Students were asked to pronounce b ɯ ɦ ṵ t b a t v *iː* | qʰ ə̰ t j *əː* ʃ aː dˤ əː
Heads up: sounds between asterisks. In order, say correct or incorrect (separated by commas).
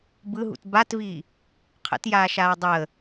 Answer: correct, incorrect